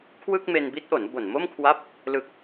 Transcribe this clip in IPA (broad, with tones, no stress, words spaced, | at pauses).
kʰwɯ˥˩k̚me˧nbi˦˥t̚ʔo˩˦n bo˨˩nmo˥˩mkʰwa˦˥p̚ | lɯ˨˩k̚